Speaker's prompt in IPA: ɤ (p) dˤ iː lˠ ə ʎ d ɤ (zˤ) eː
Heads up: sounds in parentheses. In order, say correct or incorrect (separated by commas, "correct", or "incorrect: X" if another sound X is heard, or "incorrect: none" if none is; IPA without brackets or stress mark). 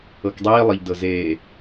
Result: incorrect: k, incorrect: z